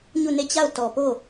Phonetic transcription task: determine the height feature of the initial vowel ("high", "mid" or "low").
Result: high